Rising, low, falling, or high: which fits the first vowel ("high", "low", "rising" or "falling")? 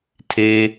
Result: low